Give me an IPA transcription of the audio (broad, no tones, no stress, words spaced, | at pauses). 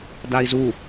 dai̯zu